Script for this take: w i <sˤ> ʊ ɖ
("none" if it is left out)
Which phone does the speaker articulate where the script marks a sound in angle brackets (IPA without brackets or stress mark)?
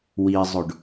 zˤ